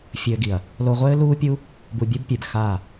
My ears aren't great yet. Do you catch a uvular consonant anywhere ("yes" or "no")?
yes